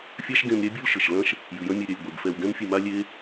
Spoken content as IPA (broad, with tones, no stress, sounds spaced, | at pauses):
fʲ a˦ ʃ ɡ ẽ˧ m ɾʲ ɛ˦ bʲ u˦ l ʃ ɘ˨ ʃ l ɐ̃˦ ʃ | j ɨ˨ j ɐ̃˦ mʲ ɘ˧ ɾʲ ɛ˧ lʲ ɡʷ e˨ ɡ f ɛ˧ w ɡ ɛ̃˦ m fʲ ɨ˧ m a˦ lʲ e˦